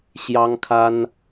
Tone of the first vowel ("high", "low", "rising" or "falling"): high